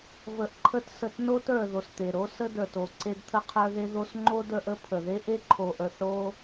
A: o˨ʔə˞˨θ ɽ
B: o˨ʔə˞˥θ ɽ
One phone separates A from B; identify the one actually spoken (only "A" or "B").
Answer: A